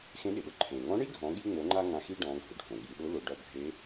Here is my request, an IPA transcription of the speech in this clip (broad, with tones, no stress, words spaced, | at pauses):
xẽ˧˥ɗɪ˩ɗʊ˧ ǃʰẽ˩ŋɔ̃˧˥ ɳi˥ɡʱɔ̃˩˧ɠi˧ŋ͡mo˩˧ ŋ͡ǃa˥ ŋã˧xi˥ ɖɔ̃˩˧ɡʱʊ˩ ɖʱõ˩ɠi˩˧ɗʊ˧˥lʊ˩˧ ɖɔ˧bʱe˧˥